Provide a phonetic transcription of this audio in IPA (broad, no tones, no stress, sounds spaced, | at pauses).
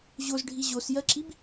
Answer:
ʑ o z ɖʱ i ʑ o s j ɜ ǁ i b